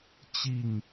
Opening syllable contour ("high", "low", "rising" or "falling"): falling